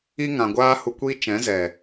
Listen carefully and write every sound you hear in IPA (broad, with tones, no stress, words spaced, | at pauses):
i˦ŋã˨ ɡʷaː˦hu˧kʷi˦t͡ʃɛ̃˨˦ zɛ˨